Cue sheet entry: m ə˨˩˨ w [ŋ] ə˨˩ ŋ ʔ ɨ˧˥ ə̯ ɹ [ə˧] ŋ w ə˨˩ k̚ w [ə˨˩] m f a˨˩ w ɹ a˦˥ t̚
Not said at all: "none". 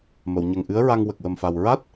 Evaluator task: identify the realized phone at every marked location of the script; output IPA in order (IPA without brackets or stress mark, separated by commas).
ɲ, a˧, ə˨˩